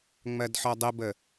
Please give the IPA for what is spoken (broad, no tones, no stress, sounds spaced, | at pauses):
ŋ͡m ɜ d ħ ɔ dˤ ə b ə